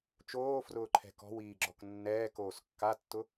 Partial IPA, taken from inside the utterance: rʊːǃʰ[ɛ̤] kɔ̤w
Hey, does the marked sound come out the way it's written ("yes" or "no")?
yes